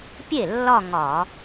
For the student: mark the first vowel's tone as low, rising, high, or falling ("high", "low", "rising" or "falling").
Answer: falling